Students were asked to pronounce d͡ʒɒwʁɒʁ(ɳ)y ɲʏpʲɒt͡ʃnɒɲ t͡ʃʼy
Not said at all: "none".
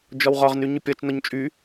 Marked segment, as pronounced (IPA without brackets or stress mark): n